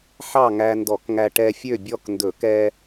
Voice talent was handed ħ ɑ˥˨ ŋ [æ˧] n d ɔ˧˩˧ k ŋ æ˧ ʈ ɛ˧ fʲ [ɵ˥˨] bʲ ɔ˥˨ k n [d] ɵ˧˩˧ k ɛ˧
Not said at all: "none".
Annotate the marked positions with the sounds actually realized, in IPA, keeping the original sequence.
æ˧, ø˥˨, d

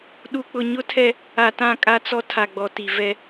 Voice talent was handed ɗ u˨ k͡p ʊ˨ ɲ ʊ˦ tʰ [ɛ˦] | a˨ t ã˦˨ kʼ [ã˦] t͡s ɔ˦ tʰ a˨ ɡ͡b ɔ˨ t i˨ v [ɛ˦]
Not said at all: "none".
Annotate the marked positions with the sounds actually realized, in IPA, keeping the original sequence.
ɛ˦, a˦, ɛ˦

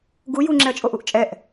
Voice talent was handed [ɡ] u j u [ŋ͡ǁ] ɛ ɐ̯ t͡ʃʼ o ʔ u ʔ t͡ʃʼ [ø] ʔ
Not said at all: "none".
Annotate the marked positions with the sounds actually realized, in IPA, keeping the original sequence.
ɡ, ŋ͡ǁ, ɛ

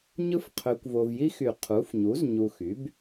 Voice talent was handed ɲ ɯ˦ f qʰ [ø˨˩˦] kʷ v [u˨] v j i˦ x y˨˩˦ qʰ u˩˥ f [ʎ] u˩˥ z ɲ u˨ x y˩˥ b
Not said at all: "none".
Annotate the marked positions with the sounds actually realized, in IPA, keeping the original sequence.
ø˨, o˨, ɲ

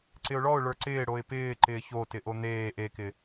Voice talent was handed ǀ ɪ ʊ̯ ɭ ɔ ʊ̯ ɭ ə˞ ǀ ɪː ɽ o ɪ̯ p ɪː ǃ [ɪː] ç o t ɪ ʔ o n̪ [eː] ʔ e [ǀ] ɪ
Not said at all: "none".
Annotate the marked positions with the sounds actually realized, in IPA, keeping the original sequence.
ɪː, eː, k

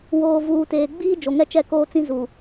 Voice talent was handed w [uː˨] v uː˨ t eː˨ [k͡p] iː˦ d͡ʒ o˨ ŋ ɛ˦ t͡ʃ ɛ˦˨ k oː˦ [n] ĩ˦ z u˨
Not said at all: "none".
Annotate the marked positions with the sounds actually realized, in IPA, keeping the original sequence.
oː˨, ɡ͡b, t͡s

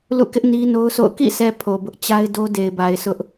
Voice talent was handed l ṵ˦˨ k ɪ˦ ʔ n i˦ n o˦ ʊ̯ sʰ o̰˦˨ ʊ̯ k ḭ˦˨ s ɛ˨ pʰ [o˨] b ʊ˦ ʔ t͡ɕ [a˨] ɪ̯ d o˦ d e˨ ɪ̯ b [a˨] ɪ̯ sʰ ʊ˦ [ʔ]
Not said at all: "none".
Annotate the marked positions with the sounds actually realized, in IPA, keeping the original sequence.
o˨, a˦, a˨, ʔ

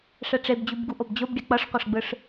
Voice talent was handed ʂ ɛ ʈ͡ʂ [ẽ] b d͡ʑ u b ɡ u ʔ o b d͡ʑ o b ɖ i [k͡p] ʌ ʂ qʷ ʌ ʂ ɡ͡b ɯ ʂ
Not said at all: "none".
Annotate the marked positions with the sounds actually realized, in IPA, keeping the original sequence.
e, k͡p

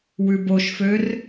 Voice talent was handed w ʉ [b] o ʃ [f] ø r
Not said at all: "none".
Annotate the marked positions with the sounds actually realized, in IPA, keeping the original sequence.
b, f

